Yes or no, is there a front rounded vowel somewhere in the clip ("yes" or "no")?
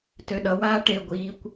yes